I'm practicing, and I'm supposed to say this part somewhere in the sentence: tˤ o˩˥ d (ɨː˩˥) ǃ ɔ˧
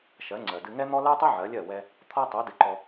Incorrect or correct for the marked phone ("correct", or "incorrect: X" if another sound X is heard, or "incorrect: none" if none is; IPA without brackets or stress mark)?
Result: incorrect: ɨ˩˥